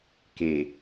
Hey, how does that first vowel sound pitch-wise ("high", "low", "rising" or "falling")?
low